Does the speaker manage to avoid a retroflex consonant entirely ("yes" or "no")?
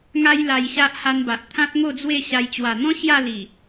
yes